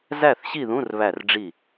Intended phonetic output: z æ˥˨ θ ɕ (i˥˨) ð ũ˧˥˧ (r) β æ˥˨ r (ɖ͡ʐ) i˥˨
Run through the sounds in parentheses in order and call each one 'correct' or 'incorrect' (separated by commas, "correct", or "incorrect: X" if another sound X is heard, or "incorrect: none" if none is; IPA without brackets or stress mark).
correct, correct, correct